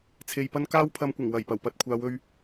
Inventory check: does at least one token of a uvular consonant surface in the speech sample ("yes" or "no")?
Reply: no